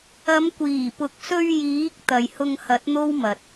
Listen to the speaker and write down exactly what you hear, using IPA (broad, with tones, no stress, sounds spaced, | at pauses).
ɐ˨˧ m kʷ iː˨˩ p ʊ˨ k̚ s ɵ˧ ɥ j iː˨˥ k̚ t̪ ɐ˨ j h ʊ˧ ŋ h ɐ˨˥ t̚ n̪ o˥ w m ɐ˨ t̚